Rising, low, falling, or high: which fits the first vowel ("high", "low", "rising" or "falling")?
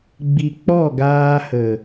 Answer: low